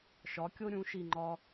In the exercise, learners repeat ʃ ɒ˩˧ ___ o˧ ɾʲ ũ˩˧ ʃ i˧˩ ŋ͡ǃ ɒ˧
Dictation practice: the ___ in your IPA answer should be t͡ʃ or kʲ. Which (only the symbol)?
kʲ